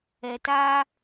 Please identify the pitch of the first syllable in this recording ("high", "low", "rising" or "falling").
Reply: low